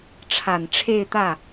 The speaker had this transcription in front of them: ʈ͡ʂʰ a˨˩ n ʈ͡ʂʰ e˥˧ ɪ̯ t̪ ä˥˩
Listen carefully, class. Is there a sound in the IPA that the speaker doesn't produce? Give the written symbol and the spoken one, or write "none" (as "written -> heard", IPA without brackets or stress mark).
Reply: none